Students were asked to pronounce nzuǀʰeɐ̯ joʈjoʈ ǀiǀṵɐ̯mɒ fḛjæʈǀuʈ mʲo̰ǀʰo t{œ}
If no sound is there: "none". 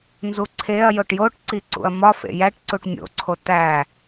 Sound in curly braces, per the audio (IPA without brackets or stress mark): æ